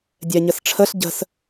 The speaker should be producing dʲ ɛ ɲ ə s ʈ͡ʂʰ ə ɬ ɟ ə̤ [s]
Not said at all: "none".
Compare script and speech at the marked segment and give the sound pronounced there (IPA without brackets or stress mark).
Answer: s